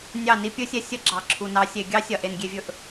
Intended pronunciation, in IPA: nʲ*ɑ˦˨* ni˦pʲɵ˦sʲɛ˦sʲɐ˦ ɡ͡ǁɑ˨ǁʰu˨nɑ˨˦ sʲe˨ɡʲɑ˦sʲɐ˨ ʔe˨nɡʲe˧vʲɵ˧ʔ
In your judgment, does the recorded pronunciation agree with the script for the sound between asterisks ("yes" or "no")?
yes